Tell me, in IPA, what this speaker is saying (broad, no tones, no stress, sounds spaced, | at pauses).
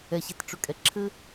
ɛ ɕ e t ʈ͡ʂ ø kʼ ɛ ǁʰ ɘ